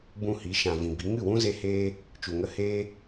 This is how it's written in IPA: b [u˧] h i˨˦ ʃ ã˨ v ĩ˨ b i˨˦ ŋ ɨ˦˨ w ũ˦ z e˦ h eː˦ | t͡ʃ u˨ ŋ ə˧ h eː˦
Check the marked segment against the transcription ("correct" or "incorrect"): incorrect